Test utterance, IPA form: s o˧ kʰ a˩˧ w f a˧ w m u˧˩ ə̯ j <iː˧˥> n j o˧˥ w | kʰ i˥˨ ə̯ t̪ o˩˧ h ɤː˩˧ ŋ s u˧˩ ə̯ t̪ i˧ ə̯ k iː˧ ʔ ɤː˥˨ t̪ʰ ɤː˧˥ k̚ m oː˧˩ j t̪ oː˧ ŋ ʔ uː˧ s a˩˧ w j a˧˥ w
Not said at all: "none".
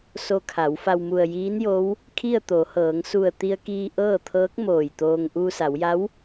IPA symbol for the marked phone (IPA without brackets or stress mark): iː˧˥